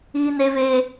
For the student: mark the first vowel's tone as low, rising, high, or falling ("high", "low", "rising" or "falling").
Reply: high